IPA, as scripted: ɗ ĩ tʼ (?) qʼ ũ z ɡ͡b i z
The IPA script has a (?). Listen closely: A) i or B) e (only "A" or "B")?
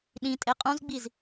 B